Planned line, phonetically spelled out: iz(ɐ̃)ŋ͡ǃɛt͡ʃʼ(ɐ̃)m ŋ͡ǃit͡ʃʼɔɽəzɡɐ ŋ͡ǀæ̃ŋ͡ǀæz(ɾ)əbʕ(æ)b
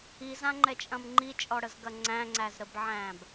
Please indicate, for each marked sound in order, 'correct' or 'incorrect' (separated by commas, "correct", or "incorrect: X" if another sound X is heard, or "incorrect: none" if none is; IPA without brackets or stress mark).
incorrect: ã, correct, correct, incorrect: æ̃